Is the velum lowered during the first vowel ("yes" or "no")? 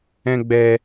yes